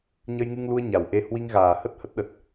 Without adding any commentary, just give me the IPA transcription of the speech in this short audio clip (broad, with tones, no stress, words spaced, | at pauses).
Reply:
ɲə˧jŋɨ˧ŋlu˧ə̯ ɲa˨˩wʔe˧ hwi˧ŋɣaː˨˩hə˦˥t̚ hə˦˥t̚ɗə˨˩t̚